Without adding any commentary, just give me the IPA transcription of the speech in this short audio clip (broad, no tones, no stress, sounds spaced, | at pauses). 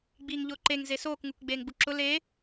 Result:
ɡ͡b iː ŋ ʎ ʊː ǃ e ŋ z e s oː k ŋ u k ɡ͡b eː ŋ ɡ͡b u ǁ ʊ l e